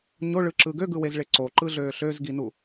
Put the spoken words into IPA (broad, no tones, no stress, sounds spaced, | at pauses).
ɲ o ɭ ɯ ǁ ɯ ɡ ø ɡ ɯ w e z ɭ e ǀ o ǃ ɯ ɮ øː ɬ ø z ɡ i n u